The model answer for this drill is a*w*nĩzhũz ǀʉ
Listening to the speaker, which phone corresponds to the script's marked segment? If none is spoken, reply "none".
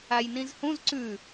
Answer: j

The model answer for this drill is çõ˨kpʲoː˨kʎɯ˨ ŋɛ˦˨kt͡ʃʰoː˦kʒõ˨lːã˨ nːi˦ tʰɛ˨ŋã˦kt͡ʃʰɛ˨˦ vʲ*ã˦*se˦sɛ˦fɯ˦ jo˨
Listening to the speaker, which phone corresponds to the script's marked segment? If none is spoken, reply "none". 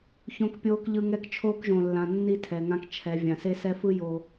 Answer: ã˨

